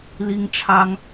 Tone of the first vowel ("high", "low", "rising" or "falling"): high